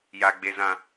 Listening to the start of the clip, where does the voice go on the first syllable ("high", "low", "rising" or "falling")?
low